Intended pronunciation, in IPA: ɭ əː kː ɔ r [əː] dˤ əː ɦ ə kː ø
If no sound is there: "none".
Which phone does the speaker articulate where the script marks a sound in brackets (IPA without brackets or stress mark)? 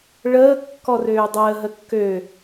øː